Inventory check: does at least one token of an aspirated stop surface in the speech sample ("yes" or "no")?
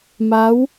no